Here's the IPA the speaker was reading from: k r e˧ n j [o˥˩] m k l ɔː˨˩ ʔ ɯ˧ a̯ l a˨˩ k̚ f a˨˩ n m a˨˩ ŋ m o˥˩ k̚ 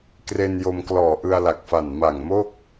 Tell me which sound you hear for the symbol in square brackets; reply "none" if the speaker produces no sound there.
o˧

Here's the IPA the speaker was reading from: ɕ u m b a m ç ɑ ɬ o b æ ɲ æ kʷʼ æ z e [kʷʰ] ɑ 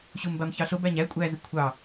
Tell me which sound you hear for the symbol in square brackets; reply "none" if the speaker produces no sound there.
kʷʰ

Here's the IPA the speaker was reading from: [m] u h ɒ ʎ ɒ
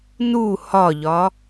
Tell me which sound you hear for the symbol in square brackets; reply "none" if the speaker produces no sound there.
n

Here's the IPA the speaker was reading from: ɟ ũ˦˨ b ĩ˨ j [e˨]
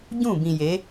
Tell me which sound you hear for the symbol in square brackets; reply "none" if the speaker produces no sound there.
e˨˦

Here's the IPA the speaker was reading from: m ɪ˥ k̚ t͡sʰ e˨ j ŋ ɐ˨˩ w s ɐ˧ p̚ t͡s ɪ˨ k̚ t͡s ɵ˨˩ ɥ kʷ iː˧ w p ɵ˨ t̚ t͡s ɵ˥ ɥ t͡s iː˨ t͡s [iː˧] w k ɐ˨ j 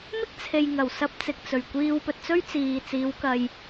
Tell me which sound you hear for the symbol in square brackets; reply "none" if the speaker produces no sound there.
iː˨˧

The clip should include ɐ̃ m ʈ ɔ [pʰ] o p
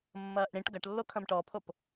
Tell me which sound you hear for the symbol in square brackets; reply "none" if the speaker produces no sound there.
pʰ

